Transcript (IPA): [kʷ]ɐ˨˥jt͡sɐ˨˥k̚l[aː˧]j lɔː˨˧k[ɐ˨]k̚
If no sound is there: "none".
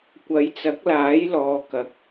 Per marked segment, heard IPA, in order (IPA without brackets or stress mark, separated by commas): kʷ, aː˨˥, ɐ˨